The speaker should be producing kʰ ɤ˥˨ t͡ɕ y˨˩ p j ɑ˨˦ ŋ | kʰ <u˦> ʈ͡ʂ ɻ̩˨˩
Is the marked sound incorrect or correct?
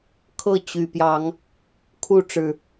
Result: incorrect